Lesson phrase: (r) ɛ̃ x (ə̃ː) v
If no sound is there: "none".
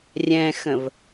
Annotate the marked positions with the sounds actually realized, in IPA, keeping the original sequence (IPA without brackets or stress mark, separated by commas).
rʲ, ə̃